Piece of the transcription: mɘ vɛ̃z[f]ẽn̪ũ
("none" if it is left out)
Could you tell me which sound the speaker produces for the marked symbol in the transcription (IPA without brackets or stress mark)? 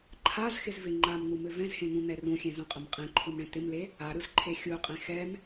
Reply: h